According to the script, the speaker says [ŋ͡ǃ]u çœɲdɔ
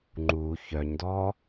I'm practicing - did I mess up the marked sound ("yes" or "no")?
no